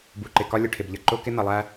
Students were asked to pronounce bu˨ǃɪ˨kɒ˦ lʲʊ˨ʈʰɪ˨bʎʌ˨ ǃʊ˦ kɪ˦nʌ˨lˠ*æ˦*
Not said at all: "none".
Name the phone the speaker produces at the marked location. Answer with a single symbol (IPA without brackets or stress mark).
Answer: æ˦